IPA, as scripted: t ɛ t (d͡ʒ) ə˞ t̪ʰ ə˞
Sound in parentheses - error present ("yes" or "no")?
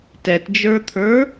no